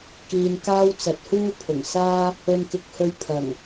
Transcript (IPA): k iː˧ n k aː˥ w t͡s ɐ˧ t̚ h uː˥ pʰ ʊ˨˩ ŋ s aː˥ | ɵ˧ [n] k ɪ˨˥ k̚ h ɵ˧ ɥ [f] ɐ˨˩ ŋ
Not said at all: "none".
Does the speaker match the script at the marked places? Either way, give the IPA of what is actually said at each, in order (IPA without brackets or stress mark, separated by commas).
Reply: n, pʰ